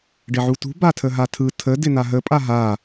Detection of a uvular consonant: absent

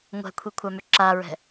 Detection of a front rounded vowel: present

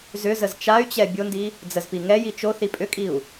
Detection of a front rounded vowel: present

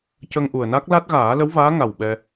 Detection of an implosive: present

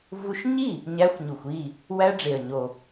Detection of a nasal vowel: absent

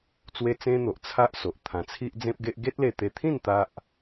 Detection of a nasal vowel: present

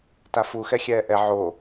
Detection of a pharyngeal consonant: present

